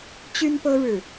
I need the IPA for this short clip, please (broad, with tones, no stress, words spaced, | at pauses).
t͡ɕy˦npɤ˦ɻɻ̩˨